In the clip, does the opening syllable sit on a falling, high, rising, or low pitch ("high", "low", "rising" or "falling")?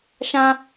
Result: high